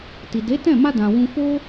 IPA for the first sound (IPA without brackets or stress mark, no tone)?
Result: t